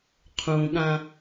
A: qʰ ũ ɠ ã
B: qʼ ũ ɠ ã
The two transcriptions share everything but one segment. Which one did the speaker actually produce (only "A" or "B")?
A